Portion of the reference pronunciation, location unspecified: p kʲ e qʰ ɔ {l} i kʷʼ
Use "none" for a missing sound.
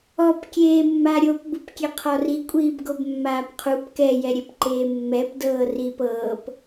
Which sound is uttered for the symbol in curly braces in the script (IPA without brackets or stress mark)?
r